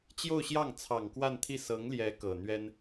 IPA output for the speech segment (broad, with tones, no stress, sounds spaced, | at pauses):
t͡ɕ j o˥˧ ʊ̯ ɕ j ɑ˥˩ ŋ t͡sʰ ɑ˨˩ ŋ k w a˥˧ n t̪ʰ i˥˩ s ɤ˧˥ ŋ l j ɛ˧˥ k ɤ˨˩ n̪ ɥ ɛ˥ n